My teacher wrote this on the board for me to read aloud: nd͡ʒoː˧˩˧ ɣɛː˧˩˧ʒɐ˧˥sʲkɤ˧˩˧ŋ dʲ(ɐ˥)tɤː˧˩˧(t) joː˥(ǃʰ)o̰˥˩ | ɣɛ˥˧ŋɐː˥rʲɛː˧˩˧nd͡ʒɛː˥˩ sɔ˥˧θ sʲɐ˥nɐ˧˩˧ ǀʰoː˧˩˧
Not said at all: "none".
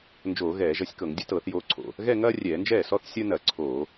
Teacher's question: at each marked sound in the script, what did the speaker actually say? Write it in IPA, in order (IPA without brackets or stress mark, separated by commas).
ɐ˥, θ, ǀʰ